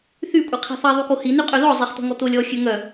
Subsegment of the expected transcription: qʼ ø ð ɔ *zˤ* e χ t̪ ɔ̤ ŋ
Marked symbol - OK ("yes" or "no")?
yes